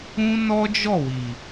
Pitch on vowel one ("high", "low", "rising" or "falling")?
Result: high